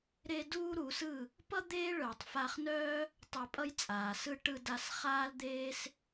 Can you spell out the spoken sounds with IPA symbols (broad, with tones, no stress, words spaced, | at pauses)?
ɾe˦ duː˦ɾu˨˦sɯ˦˨ | pʌ˦ d̪eː˦ɭœ˨tˤ fa˧χnœː˦ | tˤe˧pʼʌ˦jt͡sʼaː˨sɯ˦ ʈɯ˧da˧s χaː˦ld̪eː˦s